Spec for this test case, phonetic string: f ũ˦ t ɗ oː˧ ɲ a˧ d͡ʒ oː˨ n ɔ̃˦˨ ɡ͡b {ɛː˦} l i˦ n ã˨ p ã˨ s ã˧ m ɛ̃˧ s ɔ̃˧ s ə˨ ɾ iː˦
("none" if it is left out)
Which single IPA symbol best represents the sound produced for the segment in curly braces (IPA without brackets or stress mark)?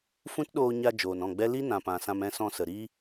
ɛ˦